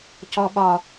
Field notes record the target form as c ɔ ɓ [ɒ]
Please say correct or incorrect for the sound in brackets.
correct